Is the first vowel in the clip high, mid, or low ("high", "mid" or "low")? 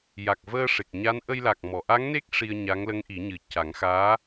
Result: low